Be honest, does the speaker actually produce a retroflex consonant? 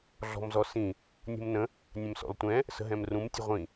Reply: no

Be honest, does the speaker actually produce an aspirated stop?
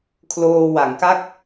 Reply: yes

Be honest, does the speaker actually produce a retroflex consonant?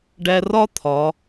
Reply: yes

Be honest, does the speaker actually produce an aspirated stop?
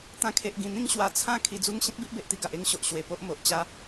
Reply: yes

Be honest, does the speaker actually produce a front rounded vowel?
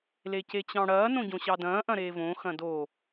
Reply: no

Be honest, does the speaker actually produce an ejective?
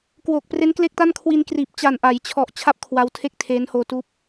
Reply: no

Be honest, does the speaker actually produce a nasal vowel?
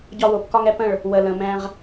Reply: yes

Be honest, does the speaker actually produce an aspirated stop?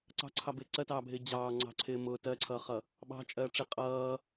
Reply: yes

